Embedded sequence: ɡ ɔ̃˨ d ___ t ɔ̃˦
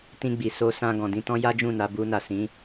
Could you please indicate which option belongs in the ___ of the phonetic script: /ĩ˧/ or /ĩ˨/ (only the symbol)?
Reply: ĩ˧